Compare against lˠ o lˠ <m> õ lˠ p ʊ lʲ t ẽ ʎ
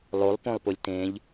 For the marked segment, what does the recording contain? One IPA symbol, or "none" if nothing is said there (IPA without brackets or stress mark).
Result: p